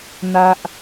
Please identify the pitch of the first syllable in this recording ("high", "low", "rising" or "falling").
high